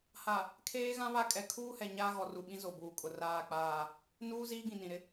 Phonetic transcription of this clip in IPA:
ha˨ | kʰeː˦ɣã˦βa˦ kʼɛ˨kʰuː˦hɛ˨ ɲaː˦ɣɔ˨ru˨ɓĩ˦ zo˨buː˨kʼʊ˨ raː˦˨k͡paː˦˨ | nuː˦ ziː˦ɡĩ˨nĩ˨ɾɪ˦

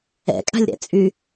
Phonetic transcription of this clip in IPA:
ɛ̰kʼa̤lʲɾɛ̰ t͡sʼy

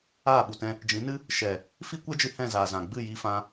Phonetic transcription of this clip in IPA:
aː˦˨ɓu˨tɛ̃˧ | d͡ʒĩ˨˦nɨ˦ | ʃɛ˨ | fi˦kʷɛ˦d͡ʒɨ˧ hɛ̃˦˨zaː˨ zã˨ ɡ͡bɨ˦˨ji˧ fã˧

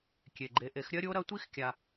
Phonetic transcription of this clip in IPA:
kʲe˨ɡ͡ǃe˨˦ʔe˨˦x ɾʲɐ˦ɾʲo˦ɾɐ˦ tʷi˦x kʲa˧

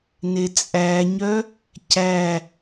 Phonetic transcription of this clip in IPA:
net͡sʼæɲœ | cæ

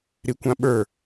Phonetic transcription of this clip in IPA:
ɾikʷãɓə˞

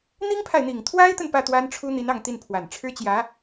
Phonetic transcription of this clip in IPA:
n̪i˥ŋpʰa˨ɪ̯n̪i˨˩ŋ t̪ʰwa˥ɪ̯t̪ə˨n pä˥˩t̪wa˥nʈ͡ʂʰu˥ n̪i˧˥nɑ˥˧ŋt̪i˥˩npʰwa˨˩n ʈ͡ʂʰɻ̩˥t͡ɕjä˧˥

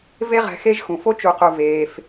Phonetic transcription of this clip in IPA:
ve˦ʁɛ̤˨xe˦ʒ xũ˩fo˥t͡ʃu˨qu˨ veː˩f

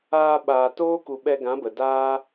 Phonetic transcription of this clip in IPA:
aː˧ ɓaː˨ toː˦ ku˨ ɓɛ˧ɡã˨˦ bə˨daː˦

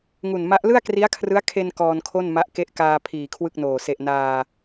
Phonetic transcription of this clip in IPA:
ŋu˨˩nma˦˥ʔ lɯ˥˩a̯kri˦˥a̯kʰrɯ˦˥a̯ kʰe˧n kɔː˧nkʰo˥˩nma˦˥ʔ ke˦˥ʔkaː˧ pʰiː˨˩kʰwɯ˥˩k̚noː˨˩ se˨˩ʔ naː˧

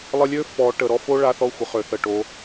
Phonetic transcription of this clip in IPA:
lˠə˦ lʲø˦ fɔ˨˦ ʈə˨ ɾɔ˦˨fo˦ ɭa˦ θɔ˦xʷə˨ χø˨θə˨ʈo˨˦

